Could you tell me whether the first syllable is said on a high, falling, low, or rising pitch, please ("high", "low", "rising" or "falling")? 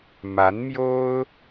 rising